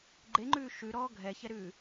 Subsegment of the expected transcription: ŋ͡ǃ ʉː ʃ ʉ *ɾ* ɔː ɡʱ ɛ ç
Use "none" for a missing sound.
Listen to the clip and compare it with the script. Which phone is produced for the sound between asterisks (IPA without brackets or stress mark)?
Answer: ɾ